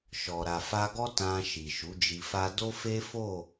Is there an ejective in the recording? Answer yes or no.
no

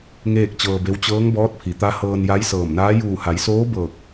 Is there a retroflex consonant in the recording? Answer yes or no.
no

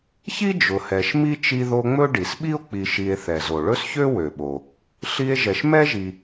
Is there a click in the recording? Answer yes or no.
no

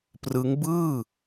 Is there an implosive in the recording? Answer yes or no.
no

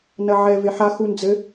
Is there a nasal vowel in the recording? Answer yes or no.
no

